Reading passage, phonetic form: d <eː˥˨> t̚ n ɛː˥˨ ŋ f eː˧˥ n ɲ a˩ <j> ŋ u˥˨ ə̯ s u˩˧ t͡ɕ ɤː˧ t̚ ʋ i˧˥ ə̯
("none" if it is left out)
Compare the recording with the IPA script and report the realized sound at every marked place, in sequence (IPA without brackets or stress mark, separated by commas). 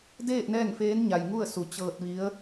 eː˥˨, j